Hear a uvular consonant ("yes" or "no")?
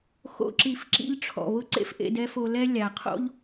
yes